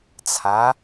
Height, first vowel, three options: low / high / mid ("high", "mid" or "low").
low